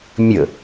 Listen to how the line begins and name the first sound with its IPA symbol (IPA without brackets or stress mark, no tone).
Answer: mʲ